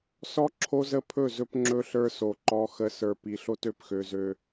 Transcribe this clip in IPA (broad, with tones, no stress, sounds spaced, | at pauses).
s ɔ˦ ǁʰ o˦ z ə˦ pʰ ɵ˦˨ z ɵ˦ p ŋ͡ǁ ɵ˦ ɬ ə˞˦ s o˨ ǃ ɔ˨ x ə˨ s ə˞˨ p i˨ ɬ o˦ t ø˨ p x ø˨ z ø˦